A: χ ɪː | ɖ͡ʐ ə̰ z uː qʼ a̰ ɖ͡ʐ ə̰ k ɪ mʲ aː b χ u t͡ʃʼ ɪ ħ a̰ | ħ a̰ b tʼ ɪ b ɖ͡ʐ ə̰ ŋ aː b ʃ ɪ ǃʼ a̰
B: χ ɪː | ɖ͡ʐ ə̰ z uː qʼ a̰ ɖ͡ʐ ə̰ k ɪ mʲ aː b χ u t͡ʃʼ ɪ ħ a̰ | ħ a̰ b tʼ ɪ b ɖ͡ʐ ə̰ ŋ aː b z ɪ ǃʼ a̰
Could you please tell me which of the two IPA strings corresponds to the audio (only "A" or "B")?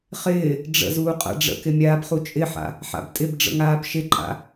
A